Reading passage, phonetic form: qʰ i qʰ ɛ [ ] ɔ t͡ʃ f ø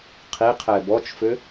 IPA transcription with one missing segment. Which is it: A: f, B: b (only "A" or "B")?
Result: B